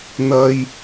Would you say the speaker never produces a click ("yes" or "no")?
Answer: yes